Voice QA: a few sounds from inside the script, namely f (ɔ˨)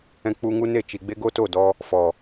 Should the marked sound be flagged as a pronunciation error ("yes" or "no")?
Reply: no